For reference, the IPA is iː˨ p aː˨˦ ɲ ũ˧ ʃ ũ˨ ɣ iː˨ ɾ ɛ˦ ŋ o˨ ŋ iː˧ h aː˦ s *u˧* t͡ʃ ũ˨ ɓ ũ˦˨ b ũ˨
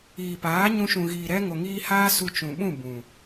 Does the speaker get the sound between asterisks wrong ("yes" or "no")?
no